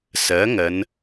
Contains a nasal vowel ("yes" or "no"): no